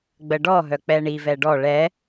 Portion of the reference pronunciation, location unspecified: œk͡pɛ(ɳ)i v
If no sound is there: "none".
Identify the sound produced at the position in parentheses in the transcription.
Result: ɳ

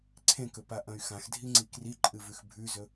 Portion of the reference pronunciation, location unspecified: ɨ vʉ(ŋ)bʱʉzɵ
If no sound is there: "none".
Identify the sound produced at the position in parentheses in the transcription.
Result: x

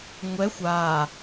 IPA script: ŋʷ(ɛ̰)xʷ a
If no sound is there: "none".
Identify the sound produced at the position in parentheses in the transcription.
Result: ɛ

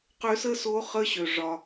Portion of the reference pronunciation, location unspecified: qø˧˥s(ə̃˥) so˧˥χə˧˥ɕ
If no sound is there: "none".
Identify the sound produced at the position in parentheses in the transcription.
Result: ə˥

